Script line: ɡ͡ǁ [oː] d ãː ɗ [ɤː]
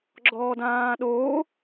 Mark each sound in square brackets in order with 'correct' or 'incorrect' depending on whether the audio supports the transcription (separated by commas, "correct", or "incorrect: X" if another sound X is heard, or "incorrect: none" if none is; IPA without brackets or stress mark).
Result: incorrect: ɔː, incorrect: oː